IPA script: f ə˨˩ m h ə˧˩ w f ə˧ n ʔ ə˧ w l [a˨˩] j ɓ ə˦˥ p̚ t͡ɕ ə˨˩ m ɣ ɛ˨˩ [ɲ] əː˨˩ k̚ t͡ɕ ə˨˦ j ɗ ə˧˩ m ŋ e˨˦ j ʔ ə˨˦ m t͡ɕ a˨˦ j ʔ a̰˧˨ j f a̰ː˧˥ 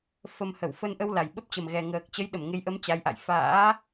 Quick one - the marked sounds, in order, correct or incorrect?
correct, incorrect

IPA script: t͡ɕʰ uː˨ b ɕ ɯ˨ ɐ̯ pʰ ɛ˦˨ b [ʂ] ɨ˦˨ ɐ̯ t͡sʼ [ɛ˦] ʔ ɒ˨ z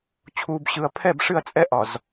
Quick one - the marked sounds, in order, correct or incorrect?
correct, correct

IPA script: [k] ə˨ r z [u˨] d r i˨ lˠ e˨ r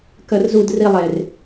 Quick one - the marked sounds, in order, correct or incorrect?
correct, correct

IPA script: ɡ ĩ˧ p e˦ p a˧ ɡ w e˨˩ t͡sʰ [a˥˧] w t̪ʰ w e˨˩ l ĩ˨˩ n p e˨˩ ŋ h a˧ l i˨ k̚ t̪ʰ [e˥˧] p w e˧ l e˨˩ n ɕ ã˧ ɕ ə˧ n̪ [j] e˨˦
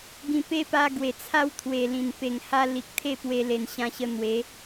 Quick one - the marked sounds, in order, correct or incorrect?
correct, correct, incorrect

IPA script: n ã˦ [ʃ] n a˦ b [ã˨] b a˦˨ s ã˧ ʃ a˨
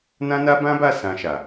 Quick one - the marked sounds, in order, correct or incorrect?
incorrect, incorrect

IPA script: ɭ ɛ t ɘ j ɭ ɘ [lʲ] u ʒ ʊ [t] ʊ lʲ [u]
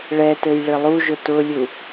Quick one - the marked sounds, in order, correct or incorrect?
incorrect, correct, correct

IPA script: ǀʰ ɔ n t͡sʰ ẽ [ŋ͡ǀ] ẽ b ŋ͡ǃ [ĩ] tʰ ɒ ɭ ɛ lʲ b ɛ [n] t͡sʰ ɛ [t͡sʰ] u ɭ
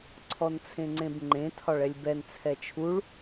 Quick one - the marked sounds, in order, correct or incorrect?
correct, incorrect, correct, incorrect

